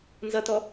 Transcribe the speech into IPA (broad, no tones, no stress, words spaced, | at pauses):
nzʌtɔ